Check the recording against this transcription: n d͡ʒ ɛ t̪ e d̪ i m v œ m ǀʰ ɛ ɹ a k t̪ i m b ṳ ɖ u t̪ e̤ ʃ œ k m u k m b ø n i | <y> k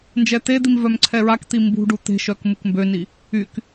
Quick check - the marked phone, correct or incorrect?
correct